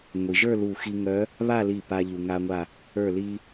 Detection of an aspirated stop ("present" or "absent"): absent